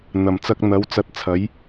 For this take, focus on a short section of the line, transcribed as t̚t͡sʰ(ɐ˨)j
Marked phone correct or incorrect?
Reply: incorrect